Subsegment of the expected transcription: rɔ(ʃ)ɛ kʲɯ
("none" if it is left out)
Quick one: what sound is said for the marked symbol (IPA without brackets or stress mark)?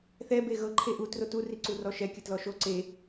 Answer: ʃ